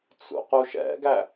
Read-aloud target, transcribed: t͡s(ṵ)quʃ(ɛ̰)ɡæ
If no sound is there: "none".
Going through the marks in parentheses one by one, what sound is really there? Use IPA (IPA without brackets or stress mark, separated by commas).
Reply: ṵ, ɛ̰